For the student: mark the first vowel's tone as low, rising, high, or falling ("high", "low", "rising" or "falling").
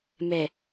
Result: low